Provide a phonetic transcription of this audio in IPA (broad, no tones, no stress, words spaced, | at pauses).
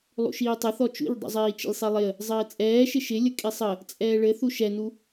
lˠṵʃiːtˤəθɔ t͡ʃṵʎdˤṵzˤiː t͡ʃə̰lʲsˤilˠɪə̯ | zˤɘːt͡sʼɛːʃɪ ʃɪlʲə kʼisˤə | t͡sʼɛːɭɘ θuʃɛnu